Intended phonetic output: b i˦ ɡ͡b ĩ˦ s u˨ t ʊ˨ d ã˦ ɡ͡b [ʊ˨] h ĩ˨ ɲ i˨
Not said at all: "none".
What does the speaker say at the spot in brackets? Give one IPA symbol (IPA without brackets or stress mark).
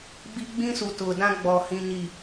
ɔ˨